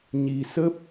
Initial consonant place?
palatal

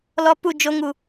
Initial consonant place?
alveolar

